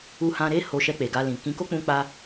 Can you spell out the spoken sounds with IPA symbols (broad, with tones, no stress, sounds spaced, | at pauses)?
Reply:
u˧ h ã˧ ɾ e˦ h o˧ ʃ ɛ˧ k͡p e˨ ɡ a˧ l ĩ˨ k ĩ˨˦ k o˦ k͡p ũ˧ k͡p a˧